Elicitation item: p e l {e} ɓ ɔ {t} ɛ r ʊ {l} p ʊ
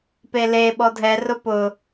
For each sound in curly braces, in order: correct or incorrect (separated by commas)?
correct, incorrect, incorrect